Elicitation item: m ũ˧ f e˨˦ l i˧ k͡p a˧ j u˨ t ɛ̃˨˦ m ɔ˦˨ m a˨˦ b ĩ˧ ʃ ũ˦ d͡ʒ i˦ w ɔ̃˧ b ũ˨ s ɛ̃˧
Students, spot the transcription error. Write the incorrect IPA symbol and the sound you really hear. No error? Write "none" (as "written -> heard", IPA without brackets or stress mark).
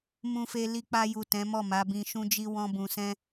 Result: e˨˦ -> e˧